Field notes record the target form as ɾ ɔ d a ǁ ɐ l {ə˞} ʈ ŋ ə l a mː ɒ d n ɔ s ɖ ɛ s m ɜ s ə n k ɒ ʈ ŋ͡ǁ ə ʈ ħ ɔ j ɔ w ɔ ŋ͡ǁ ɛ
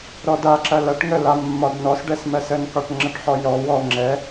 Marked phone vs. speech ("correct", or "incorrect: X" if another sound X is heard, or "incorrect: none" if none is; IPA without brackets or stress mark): incorrect: ɐ